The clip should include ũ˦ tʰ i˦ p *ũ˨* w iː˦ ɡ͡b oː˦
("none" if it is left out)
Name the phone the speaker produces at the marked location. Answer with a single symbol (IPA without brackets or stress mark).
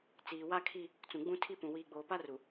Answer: ũ˨